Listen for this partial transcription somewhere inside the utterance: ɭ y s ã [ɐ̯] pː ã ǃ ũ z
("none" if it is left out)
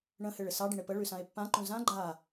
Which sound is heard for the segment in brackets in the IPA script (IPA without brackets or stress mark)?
e̯